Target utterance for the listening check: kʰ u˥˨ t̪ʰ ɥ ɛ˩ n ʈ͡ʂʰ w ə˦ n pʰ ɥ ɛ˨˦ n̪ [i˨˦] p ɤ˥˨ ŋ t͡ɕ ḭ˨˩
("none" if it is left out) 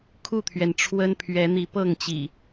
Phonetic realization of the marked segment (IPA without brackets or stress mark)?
i˨˦